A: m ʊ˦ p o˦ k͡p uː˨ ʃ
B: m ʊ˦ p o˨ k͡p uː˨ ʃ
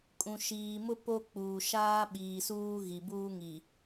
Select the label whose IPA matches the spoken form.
A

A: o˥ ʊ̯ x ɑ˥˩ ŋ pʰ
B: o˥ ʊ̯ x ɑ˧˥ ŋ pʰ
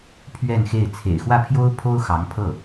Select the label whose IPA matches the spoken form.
B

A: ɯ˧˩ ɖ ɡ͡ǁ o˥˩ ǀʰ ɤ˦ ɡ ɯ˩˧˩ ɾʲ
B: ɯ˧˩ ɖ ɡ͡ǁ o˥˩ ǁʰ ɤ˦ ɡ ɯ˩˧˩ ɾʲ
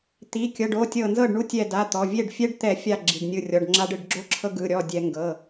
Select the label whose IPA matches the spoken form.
B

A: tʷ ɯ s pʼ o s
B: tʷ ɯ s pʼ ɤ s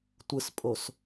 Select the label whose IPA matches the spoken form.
A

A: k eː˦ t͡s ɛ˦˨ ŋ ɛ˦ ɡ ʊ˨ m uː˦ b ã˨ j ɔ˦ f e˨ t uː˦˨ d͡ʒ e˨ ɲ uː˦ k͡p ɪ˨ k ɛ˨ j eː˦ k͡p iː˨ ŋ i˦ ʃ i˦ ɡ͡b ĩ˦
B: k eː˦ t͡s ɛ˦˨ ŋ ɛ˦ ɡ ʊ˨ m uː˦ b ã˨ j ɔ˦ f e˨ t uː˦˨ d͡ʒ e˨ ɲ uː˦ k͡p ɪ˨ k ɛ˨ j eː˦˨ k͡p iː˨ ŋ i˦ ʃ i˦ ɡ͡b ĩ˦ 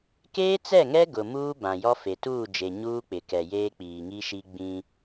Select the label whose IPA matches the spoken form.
A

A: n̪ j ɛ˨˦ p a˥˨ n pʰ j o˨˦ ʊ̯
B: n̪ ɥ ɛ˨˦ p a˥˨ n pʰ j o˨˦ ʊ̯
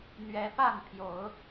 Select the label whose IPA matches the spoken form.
B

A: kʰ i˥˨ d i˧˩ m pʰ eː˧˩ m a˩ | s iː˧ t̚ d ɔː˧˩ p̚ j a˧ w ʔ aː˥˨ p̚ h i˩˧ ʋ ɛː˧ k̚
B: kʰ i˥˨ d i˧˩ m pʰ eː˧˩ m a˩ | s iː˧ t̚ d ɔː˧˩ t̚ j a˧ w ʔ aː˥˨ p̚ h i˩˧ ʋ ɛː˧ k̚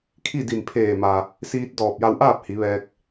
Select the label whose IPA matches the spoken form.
A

